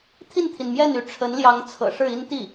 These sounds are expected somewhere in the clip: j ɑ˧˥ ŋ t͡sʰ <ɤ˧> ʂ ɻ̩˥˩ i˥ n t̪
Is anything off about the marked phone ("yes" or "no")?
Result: yes